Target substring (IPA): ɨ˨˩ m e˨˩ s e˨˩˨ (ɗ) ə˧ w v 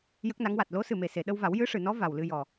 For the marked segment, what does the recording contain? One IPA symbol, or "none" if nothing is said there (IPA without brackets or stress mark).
ɗ